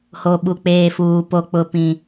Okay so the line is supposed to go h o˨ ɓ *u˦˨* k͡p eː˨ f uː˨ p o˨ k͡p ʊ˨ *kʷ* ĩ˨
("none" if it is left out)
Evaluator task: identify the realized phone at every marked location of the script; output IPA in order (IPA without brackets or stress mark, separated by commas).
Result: u˨, p